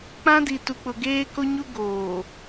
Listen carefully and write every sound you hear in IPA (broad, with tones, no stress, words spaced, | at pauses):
k͡pã˦di˨tu˨k͡pʊ˨ ɡeː˦ko˦ɲu˦ ɡoː˨